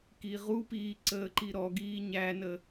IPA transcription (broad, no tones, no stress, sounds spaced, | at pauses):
k i ʁ u p iː ǀ əː ǃ i ɾ ɔ ɡ iː ɲ æ n ə